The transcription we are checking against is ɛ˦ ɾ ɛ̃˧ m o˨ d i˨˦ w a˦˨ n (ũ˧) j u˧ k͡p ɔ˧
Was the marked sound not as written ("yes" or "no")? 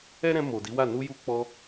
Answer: yes